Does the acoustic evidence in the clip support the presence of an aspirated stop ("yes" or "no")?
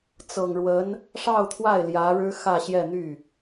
yes